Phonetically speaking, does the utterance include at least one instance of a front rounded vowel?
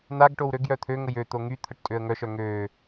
yes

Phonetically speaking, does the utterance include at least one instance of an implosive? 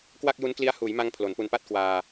no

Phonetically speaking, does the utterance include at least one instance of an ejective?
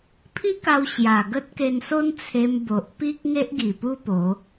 no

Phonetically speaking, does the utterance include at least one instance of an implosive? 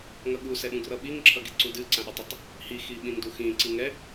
yes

